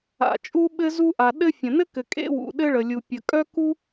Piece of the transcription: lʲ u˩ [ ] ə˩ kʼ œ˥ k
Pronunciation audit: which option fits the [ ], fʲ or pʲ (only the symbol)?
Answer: pʲ